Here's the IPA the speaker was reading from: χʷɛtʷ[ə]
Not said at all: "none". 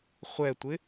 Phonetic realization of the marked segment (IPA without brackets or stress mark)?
ɪ